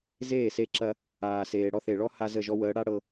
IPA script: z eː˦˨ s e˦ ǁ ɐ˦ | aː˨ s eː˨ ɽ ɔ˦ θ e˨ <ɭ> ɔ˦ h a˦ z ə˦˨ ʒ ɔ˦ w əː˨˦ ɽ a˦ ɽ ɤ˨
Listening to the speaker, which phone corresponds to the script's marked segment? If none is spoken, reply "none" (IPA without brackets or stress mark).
ɭ